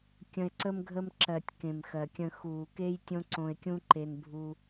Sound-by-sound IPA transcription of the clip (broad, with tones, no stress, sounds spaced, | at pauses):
kʲ ə̃˧ e̯ ǀ ə˦ m ɡʱ ə˦ m ǁ ɜ˨ tʲ k ẽ˨ m x ɜ˨ kʲ ə̃˧ x uː˨ k e˦ j tʲ õ˦ ǀ õ˧ e̯ kʲ ũ˦ ǃ e˧ n bʱ u˧